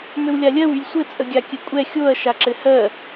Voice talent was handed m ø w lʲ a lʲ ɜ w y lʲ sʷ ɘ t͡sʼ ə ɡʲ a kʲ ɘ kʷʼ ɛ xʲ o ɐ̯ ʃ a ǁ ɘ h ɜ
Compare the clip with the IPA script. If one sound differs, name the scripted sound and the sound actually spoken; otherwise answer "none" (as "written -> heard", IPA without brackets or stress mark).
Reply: none